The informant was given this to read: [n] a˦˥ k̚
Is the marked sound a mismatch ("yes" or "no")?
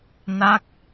no